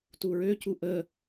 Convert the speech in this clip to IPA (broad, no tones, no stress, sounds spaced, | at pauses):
t u ɹ ø c u ʔ ə